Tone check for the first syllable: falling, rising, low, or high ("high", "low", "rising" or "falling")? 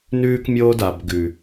high